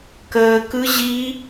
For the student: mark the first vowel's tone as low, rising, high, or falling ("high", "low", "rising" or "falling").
low